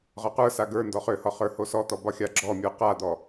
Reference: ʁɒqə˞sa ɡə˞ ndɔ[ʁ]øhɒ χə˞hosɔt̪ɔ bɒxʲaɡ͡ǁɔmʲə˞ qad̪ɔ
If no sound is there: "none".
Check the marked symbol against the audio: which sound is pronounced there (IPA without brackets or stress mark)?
χ